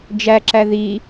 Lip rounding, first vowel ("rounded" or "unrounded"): unrounded